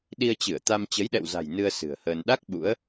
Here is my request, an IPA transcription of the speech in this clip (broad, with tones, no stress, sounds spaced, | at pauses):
ɗ i˧ ə̯ t͡ɕ ɨ˧˩ ə̯ t̪ a˧ m t͡ɕ ə˨˦ j ɗ ɛ̰˧˨ w z a̤˨˩ j n ɨ˧ ə̯ s ɨ̤˨˩ ə̯ h əː˧ n ɗ a˦˥ k̚ ɓ ṵ˧˥ ə̯